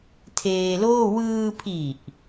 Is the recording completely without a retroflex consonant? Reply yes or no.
yes